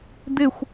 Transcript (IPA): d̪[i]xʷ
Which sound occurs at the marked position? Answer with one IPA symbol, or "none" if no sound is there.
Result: ɪ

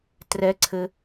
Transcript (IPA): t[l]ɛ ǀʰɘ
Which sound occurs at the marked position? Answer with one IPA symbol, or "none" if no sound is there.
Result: r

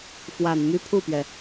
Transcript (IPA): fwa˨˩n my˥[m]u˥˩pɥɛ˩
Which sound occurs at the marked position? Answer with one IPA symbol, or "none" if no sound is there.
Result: pʰ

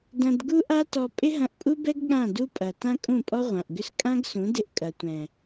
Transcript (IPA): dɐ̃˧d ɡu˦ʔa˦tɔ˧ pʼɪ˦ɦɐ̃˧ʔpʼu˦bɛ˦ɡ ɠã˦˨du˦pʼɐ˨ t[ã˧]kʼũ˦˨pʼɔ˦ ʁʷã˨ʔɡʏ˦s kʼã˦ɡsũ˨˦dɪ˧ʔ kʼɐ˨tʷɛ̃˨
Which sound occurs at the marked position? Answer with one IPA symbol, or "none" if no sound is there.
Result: ã˦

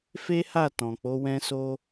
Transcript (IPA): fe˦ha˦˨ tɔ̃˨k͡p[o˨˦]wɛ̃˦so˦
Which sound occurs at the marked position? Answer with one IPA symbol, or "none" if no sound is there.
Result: o˨˦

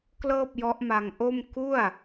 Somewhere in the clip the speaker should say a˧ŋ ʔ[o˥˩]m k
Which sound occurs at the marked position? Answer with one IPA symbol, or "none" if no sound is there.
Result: o˥˩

